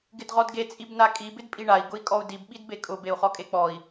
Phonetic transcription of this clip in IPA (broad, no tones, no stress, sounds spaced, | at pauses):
ɡ ɪ d ʁ ɔ d ɡ e t͡sʼ i b n a kʼ i b ɪ d pʼ i ɳ a i̯ ɡ ʊ i̯ kʼ ɔ u̯ d i b ɓ i d b e kʼ ʊ b e u̯ χ ɔ kʼ e k͡p ɔ i̯